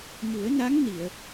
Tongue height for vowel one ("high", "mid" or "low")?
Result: high